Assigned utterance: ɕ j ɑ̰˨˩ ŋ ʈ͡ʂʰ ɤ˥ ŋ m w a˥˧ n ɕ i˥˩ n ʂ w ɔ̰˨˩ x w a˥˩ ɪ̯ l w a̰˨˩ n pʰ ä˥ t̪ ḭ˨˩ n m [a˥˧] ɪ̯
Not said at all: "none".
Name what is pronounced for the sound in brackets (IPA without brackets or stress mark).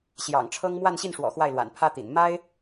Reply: a˥